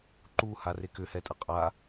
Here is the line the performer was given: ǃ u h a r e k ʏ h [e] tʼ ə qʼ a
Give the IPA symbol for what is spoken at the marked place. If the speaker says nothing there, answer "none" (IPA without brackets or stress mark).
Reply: ɛ